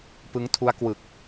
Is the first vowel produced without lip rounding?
yes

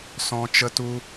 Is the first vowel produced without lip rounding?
no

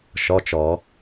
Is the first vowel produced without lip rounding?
no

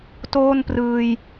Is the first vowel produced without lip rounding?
no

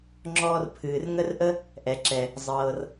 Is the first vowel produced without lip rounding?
no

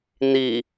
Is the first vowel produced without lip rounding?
yes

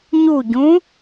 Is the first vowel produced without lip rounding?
no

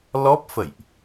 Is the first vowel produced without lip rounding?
no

